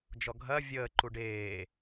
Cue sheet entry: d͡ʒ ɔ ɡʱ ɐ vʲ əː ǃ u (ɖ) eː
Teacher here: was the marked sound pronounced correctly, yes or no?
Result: yes